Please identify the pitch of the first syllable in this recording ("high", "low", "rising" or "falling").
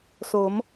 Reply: rising